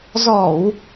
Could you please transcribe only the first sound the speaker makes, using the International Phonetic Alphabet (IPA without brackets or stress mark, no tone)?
z